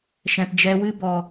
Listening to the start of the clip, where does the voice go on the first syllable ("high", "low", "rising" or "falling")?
low